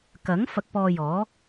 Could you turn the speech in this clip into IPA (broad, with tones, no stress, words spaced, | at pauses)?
kɐ˨˥ŋ fɐ˧k̚pɔː˧jɔː˨˥